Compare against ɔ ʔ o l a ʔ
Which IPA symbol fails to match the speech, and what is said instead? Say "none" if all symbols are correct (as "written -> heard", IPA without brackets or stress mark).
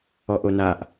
l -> n